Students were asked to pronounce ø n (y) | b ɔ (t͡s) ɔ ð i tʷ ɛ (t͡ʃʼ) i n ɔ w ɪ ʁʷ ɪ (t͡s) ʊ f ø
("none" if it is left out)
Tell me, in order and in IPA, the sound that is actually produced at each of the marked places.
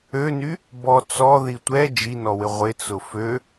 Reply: y, t͡s, d͡ʒ, t͡s

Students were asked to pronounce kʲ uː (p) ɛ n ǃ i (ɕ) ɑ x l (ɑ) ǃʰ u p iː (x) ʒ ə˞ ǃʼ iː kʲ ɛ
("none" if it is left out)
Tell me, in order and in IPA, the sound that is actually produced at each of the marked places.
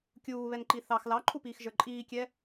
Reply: β, θ, ɑ, x

